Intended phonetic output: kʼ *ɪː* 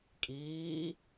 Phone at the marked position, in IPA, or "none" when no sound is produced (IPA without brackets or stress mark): iː